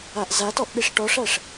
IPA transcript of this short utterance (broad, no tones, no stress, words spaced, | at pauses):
aʔzatɔʔ ɗiʂʈɔʂæʂ